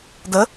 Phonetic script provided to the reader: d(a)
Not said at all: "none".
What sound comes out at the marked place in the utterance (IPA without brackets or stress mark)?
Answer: ə